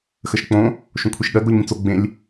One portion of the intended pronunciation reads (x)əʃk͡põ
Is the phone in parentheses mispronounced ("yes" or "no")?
no